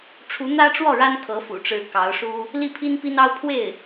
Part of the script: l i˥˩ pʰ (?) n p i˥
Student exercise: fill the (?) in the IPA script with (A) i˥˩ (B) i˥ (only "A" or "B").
B